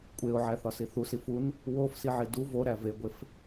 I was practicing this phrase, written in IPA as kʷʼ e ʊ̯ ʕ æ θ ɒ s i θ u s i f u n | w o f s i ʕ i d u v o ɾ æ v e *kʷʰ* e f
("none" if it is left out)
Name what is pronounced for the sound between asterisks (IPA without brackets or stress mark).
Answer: ɡʷ